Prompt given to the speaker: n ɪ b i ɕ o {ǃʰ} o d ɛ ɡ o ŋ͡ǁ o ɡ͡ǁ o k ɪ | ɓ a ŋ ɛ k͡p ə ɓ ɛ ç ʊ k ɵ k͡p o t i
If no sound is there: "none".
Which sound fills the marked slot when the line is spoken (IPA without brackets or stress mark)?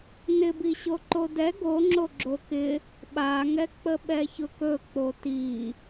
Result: ǃ